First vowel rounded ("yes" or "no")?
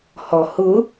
yes